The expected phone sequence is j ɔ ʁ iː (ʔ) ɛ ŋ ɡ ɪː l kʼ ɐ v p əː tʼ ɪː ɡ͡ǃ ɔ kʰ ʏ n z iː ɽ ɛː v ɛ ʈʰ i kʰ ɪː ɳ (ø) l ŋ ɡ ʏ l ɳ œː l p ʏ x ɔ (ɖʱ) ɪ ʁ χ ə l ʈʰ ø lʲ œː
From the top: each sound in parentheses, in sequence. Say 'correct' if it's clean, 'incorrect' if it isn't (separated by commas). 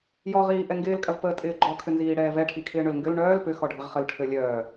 correct, correct, correct